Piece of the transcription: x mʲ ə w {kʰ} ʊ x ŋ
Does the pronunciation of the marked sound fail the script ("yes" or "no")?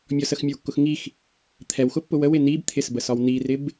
yes